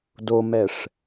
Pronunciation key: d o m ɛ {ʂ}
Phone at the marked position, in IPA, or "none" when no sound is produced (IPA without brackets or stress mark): ʂ